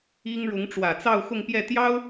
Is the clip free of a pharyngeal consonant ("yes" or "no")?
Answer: yes